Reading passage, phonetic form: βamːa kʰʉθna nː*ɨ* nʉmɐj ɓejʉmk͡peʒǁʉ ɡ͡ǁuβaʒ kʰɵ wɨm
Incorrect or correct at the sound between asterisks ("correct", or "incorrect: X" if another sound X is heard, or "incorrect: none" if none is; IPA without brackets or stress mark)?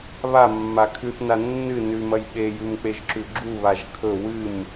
correct